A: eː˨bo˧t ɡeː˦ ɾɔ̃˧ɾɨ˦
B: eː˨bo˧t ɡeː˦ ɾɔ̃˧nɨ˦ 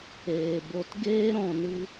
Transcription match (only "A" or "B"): B